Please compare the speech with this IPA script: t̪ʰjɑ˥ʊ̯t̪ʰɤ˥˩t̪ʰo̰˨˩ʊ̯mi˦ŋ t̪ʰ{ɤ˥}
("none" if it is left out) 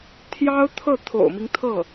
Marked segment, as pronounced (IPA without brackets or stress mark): ɤ˥˩